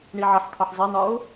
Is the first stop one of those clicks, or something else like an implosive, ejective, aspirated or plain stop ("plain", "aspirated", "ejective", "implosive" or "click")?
aspirated